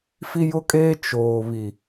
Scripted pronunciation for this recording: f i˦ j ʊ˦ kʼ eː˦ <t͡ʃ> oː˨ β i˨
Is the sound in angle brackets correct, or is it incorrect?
correct